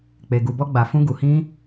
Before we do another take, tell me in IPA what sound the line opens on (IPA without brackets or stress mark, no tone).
k͡p